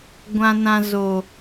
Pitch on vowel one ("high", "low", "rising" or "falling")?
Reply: low